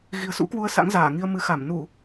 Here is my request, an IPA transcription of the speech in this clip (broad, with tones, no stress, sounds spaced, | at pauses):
ɣ i̤˨˩ ə̯ s ṵ˧˥ k w u˧ ə̯ s a̰˧˥ ŋ z aː˧˩ ŋ i˧ ə̯ m ɨ˨˦ x a˧˩ m n u˧˩˨